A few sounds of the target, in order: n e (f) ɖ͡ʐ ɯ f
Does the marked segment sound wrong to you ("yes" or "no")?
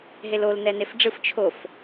no